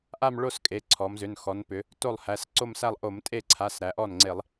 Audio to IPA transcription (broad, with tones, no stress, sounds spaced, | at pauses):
ʔ a˥˧ m ɭ o˥˧ s kʼ e˩˧˩ ǀʰ ɔ˩˧ m z ʏ˩˧˩ n x ɔ˩˧ n p ʏ˩˧ | t o˥˩ lˠ h æ˩˧˩ s ǀ o˥˧ m s æ˥˧ lˠ ʔ o˧˩˧ m tʼ e˥˩ ǀʰ a˩˧˩ s ɾ æ˩˧ ʔ ɔ˥˩ n ŋ͡ǀ e˧˩˧ lˠ